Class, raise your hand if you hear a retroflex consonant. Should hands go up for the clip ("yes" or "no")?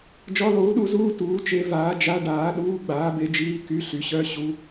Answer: yes